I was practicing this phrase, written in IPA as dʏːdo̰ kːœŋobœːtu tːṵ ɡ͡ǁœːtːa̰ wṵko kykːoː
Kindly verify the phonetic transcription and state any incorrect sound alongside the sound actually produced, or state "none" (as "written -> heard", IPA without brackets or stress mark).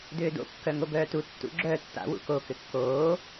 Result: y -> ʏ